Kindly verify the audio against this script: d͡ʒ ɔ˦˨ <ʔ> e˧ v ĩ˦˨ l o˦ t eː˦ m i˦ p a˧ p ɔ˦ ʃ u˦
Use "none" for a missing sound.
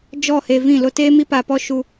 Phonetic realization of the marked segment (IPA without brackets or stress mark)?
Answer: h